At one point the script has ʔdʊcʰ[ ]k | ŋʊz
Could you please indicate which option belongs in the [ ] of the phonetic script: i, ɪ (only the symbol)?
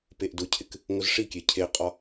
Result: ɪ